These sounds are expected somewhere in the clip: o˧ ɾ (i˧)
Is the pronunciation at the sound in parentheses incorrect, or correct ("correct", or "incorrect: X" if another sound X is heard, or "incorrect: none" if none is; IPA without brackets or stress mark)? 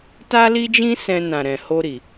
incorrect: i˨